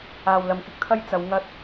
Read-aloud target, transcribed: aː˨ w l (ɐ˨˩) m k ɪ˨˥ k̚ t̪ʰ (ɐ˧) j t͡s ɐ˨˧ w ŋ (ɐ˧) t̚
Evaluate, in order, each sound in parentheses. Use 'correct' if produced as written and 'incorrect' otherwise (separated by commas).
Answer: incorrect, incorrect, correct